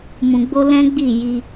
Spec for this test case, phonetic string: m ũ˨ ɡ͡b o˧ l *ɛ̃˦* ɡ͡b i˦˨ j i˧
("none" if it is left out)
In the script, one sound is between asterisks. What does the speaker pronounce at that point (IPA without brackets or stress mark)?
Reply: ɛ̃˦